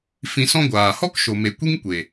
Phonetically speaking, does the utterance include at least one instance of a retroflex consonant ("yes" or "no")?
no